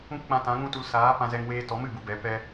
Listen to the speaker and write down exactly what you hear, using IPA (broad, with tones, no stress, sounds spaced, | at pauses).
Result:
ũ˦ k k͡p ã˧ t ã˨˦ ŋ ũ˦ t u˧ l s aː˨˦ p ã˧ z ɛ˧ ŋ w eː˧ t ɔ˨˦ m ɨ˨ b u˧ b ɛ˨˦ p ɛ˦